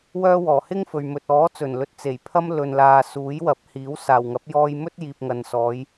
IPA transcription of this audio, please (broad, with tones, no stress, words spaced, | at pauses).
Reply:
wœː˧wɔː˨˩ hɪ˥ŋfɵ˨ɥ mɵ˨t̚ɔː˨˥t͡sɵ˨˩n lɵ˨t̚t͡se˨˩jpʰɐ˧m lɵ˨nlaː˨ suː˨˥jwɐ˨˥p̚hiː˨˥w saː˨˩wŋɐ˨˥p̚jɔː˧j mɵ˥t̚jiː˨p̚ŋɐ˨n sɔː˨˧j